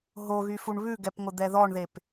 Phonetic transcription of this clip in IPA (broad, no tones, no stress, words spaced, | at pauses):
ɦoɣyfuɳ βʉɡɛpŋʷɪd̪ɛ ðɔɳðep